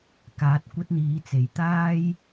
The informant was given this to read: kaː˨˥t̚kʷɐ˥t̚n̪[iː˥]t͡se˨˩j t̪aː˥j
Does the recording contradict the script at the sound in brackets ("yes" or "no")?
yes